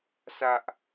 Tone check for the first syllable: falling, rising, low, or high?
high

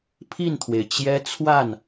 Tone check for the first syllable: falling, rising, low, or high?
falling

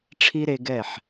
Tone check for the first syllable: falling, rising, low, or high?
high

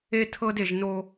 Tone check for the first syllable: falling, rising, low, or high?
high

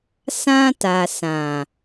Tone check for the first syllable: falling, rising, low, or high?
high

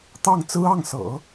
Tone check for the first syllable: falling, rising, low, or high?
falling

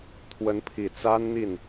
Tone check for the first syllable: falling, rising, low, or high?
rising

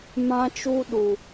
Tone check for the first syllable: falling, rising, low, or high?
high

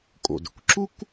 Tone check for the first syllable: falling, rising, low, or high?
low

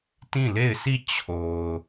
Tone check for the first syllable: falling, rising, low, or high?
falling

